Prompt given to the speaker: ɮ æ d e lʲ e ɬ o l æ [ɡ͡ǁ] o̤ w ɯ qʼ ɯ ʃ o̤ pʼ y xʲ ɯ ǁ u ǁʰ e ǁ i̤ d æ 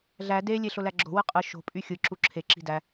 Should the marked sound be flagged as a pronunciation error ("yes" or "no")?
no